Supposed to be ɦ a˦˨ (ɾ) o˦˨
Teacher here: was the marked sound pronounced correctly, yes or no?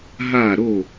yes